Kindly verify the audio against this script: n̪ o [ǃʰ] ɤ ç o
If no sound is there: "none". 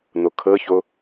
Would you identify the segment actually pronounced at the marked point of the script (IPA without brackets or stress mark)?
kʰ